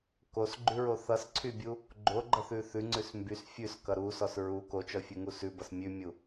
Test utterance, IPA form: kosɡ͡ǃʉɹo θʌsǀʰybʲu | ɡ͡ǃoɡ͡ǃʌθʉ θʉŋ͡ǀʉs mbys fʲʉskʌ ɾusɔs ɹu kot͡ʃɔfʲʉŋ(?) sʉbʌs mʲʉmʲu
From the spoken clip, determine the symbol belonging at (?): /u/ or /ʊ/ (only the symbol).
u